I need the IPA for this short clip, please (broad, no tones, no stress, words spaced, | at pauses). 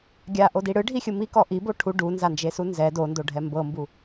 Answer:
ɡʲaʔodi ɽɯɖʱixʲɯ mikɔ ʔibo ʈʰu ɖunzand͡ʒesu nzɛ dondoɖʱɛ mbɤmbu